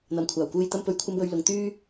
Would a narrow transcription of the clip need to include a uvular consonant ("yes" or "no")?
no